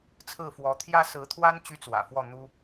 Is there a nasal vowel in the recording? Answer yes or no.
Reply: no